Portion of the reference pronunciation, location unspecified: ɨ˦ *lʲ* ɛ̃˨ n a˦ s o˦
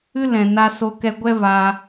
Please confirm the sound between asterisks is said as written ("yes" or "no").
no